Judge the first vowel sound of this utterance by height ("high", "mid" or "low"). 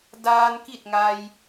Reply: low